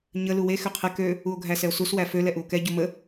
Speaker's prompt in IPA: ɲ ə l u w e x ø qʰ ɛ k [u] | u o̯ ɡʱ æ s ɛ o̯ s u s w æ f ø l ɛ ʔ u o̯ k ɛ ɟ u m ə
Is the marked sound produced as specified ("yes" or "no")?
no